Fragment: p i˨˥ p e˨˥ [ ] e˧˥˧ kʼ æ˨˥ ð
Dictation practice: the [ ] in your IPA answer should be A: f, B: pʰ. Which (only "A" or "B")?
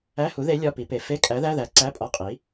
A